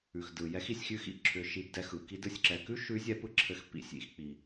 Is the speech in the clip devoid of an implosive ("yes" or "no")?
yes